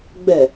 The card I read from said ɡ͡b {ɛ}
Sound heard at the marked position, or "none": ɛ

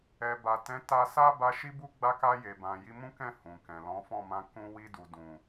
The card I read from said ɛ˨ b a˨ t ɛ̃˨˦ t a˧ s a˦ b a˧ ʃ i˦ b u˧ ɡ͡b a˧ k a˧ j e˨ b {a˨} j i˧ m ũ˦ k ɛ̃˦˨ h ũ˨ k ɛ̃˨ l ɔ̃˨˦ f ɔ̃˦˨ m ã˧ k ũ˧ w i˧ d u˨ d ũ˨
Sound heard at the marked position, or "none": ã˨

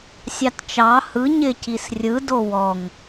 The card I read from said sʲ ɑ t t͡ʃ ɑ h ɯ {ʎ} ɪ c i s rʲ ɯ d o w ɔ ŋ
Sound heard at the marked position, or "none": ɲ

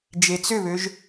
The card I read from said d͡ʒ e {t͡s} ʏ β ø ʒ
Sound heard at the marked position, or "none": t͡s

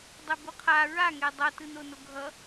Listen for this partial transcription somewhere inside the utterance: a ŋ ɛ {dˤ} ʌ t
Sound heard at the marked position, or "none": dˤ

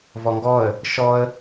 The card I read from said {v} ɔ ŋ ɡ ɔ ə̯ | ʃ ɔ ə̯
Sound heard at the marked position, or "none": v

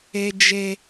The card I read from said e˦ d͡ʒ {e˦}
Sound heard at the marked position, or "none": e˦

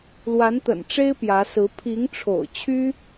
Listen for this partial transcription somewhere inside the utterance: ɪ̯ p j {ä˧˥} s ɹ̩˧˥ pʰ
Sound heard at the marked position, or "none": ä˧˥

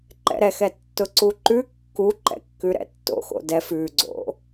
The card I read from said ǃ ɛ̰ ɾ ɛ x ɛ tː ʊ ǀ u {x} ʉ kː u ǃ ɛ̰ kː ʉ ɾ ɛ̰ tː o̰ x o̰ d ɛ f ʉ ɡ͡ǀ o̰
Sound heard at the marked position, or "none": ǃ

